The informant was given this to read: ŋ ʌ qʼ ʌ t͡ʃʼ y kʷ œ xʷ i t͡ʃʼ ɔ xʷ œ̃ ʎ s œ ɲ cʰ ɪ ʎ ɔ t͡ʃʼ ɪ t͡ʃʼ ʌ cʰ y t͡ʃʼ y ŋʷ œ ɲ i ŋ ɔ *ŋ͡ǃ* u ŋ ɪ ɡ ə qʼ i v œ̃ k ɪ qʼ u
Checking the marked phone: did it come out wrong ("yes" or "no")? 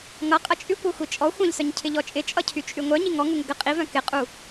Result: yes